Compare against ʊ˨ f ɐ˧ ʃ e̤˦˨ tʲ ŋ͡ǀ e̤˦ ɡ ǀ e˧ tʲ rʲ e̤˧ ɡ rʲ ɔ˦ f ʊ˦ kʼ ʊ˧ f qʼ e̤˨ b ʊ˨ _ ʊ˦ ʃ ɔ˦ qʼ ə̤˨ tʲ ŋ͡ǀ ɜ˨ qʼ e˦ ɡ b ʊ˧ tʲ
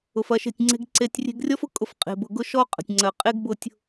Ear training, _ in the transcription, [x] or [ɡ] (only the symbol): ɡ